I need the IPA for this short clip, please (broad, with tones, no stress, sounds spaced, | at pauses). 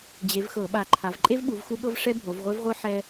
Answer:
d͡ʑ e˨˦ v x ɤ˧˩˧ ɓ a˨˦ ǃʰ a˨˦ v ǃʼ e˥ v ɓ u˨˦ v x u˥ ɠ ɤ˥ v ʂ ɛ˥ bʱ o˨˦ v ʁʷ e˥ v ʁʷ ɯ˥ ħ ɛ˥